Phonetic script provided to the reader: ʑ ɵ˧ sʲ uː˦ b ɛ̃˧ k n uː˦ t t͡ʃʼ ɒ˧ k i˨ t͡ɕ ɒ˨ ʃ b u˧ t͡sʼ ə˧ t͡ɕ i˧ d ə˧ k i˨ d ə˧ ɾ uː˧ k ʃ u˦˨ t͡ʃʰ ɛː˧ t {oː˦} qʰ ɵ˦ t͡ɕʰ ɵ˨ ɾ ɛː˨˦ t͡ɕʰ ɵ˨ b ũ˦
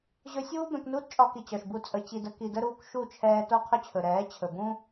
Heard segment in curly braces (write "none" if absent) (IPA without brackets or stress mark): o˦